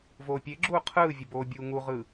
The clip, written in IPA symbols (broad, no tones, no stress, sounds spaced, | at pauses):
v oː pʲ e ɡ͡ǁ uː qʰ ɯː vʲ ə b oː bʲ uː ŋ u ʁ ɯ